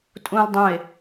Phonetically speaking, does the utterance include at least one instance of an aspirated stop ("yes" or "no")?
no